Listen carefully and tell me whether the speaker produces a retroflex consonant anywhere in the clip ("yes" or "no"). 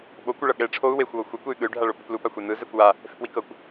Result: yes